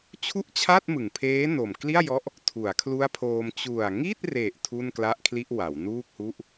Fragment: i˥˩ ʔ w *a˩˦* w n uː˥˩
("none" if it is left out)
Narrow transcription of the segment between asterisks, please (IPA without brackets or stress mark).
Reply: a˩˦